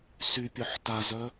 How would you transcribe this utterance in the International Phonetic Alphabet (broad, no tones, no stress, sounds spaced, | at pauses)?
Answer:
s y pʲ œ ħ t a z œ